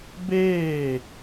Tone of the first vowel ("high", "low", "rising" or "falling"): falling